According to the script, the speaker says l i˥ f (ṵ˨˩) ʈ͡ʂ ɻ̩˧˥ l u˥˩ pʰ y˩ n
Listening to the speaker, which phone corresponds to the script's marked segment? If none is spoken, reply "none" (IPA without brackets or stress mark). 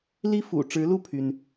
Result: ṵ˨˩